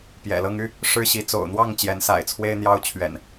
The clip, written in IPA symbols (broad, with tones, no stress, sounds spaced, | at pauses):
p j ɛ̰˨˩ l ɤ˦ ŋ y˦ | ʂ ɻ̩˦ ɕ i˨˦ t͡s o̰˨˩ ʊ̯ n̪ w ɑ˥˨ ŋ t͡ɕ j ɛ˨˦ n s a̰˨˩ ɪ̯ t͡sʰ w e˦ ɪ̯ n̪ j ɑ˦ ʊ̯ t͡ɕʰ ɥ ɛ̰˨˩ n